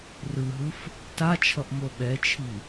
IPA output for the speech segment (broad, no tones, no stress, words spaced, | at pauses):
rɯɦɯf | tat͡ʃʰʌʔ moɓɛt͡ʃʰi